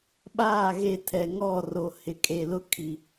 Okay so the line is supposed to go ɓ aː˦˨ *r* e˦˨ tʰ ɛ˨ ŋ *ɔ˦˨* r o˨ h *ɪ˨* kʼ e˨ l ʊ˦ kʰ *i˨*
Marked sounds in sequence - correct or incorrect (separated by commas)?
incorrect, correct, correct, correct